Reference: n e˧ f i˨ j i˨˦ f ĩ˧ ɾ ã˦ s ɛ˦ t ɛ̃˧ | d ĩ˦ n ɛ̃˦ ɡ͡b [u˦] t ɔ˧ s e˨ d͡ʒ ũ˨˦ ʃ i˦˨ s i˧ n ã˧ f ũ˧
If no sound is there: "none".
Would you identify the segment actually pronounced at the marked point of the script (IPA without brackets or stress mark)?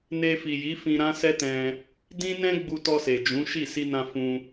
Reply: u˧